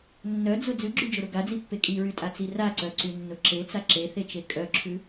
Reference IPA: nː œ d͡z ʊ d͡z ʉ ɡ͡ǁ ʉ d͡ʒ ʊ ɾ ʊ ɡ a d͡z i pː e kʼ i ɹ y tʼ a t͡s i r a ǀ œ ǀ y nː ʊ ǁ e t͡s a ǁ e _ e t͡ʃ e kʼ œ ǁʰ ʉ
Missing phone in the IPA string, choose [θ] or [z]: θ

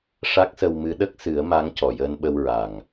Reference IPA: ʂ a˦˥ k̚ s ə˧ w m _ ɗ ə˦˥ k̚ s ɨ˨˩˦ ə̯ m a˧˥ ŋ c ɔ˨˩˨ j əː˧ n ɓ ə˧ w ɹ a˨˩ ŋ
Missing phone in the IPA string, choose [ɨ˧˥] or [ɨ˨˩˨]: ɨ˧˥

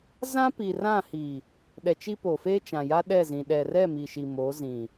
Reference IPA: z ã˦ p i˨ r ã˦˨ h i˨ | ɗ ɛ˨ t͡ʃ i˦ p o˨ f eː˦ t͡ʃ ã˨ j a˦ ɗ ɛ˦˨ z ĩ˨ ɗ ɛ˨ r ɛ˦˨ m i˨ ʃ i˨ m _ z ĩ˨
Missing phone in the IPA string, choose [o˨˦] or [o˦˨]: o˨˦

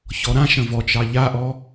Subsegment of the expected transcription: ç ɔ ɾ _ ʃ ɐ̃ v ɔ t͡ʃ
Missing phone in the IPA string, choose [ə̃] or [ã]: ã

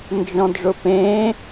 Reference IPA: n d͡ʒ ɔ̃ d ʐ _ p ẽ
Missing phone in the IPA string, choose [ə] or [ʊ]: ʊ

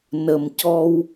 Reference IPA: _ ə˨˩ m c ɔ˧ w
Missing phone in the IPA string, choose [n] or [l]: n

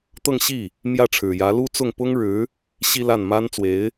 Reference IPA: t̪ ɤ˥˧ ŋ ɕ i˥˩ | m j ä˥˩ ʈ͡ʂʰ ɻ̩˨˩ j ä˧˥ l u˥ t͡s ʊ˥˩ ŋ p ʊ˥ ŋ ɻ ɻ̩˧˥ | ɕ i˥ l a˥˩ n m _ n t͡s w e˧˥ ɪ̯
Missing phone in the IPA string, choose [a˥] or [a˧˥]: a˥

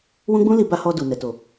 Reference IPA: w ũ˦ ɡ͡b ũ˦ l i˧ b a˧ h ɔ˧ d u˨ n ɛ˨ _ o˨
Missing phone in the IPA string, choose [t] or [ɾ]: t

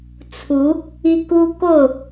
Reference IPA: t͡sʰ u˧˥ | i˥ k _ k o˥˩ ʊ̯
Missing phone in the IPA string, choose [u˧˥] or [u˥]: u˥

